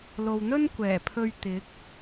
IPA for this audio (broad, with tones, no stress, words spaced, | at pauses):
lo˨wn̪ɵ˥nkʷɛː˨˩pʰɵ˧ɥ t̪ɪ˨˥k̚